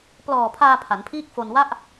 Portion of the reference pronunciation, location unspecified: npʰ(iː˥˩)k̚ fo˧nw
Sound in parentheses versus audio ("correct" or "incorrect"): correct